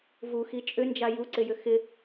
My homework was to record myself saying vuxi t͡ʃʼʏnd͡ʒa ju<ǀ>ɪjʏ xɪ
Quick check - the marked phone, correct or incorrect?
correct